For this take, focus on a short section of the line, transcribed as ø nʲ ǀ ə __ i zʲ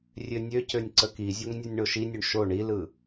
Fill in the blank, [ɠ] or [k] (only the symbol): k